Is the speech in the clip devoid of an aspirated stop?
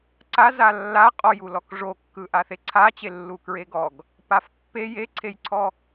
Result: no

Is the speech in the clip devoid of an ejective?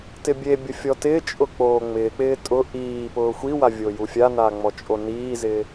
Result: no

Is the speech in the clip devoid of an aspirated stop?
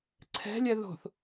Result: no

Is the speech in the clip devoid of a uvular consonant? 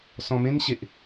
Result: yes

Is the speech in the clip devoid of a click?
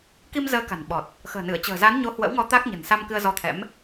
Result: yes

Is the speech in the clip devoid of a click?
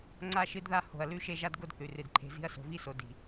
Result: no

